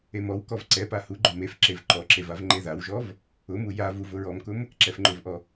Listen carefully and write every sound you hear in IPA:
emɔwkɔv ǀɛpa huɡ͡ǃʊ mefǁev ǃɔǁev avŋ͡ǃeðawʒɔv | ʊmu ja vuvʊɹɔmkʊm | ǁɛfŋ͡ǃʊvʔɔ

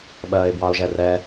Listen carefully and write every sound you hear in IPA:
ɓɜːɪ̯bwɑʊ̯ʒɛrɛ

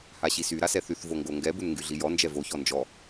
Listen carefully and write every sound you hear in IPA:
haɕisy ɾasɛθyθ voŋɡoŋɡɛ bunŋɡyɮijɔ nd͡ʒɛvo çɔnd͡ʒɔ

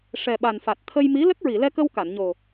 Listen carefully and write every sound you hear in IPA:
ʂɛ˨˩ɓa˨˩nfa˨˩t̚ t̪ʰə˧jmi˧˥ lə˦˥k̚ɹi˨˩˨lɛ˧kə˧w ka˨˩˨nɲo˨˩

